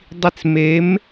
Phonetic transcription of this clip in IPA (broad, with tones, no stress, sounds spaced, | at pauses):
dˤ i˧ t͡s m e˨˥ m